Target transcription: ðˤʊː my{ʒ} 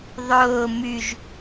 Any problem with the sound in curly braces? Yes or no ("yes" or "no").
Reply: no